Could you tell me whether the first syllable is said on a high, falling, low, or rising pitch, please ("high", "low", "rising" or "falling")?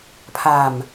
low